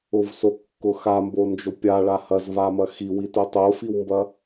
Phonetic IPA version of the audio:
ʊvsokːʊ xambond͡ʒo pʲaɭa hɐzvamɐ xiwito tˤofiwmbɐ

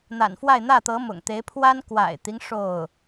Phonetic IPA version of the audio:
n̪a̰˨˩nfwa˥˧ɪ̯n̪ä˥˩t̪ɤ˧˥ mʊ̰˨˩ŋt̪e˧˥ɪ̯ pʰwa˥n kwa̰˨˩ɪ̯t̪i˦ŋ ʂo˥˩ʊ̯

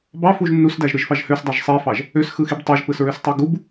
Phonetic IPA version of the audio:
bɑfuʒ nːusdæʒɾɯʒfɑʒ høsdˤɑʒ sˤifɑʒ | øsxɯxib tˤoʒpɯsɹøstˤo ɡub

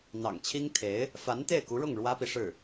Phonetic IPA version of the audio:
n̪ɑ̰˨˩ŋt͡ɕʰi˥ŋt̪ʰe˧˥ɪ̯ | fa˧˥nt̪e˥˩ɪ̯ku˧˥ɻʊ˥˩ŋ ɻwä˥pi˨ʂɻ̩˥˩

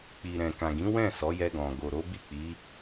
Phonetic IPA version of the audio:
k͡pi˨ɾɛ̃˨kã˨ɡĩ˨˦ wɛ̃˦˨ sɔ˨˦jɛ˧ɡɔ̃˨ ɡo˨ ɾo˨˦bi˦˨k͡pi˨˦

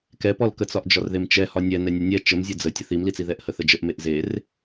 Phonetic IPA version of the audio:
kɛpɔlkət͡sɒʔ d͡ʒɒrðemt͡ʃɛ hɒnʲɛ nɛnʲənʲɛ t͡ʃəmzʲə d͡zə tʲəθimlit͡si ðɛʔhəθəd͡ʒəʔ meʔzer

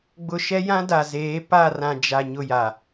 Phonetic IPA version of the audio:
ɡ͡bʊ˨ ʃɛ˦jã˦ da˨zeː˨˦ pa˦˨rã˨ d͡ʒa˨ ɲʊ˦˨ja˨

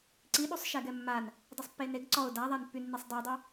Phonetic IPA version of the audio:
ǀiɗusˤ ʃɛɡɛmːan | dˤisˤpːeneɡ ǀɔʊ̯ daðˤanpːynːisˤ dˤɛdˤy

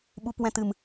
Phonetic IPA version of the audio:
ɓu˨pwɛ̃˨tɨ˨m

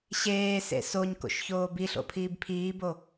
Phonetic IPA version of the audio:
ɕeːsḛ soɲko̰ʃçoː biɬo̰pʰiːb pʰiːbo

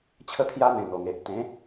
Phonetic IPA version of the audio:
t͡ɕʰə˥˧t̪ʰja˦n̪ẽ˨˩ n̪o˨˩ŋe˨ʔ t̪ẽ˨˦

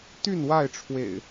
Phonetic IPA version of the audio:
t̪y˥˨nwa˥˨ɪ̯ʈ͡ʂʰwḛ˨˩ɪ̯

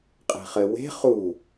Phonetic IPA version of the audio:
qʼe̤χɘ we̤ χu

